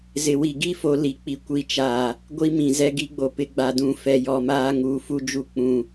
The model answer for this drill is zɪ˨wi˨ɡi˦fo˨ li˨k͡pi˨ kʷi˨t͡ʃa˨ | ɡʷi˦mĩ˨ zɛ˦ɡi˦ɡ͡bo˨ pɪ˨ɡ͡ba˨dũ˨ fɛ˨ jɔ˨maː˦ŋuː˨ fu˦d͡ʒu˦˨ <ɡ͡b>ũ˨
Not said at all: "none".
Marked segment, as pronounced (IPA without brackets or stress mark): k͡p